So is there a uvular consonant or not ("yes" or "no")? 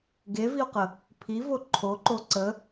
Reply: yes